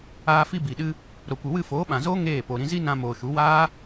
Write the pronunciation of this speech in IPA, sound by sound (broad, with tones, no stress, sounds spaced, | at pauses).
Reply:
aː˦ f i˦ b i˨ ɗ ɨ˧ | ɾ o˨ kʷ ɨ˨ w ɨ˦˨ f oː˨˦ ɓ ã˨ z oː˦ ŋ eː˦˨ p o˨ ɾ ĩ˧ z i˦ n ã˧ m oː˨ ʃ u˨˦ w aː˦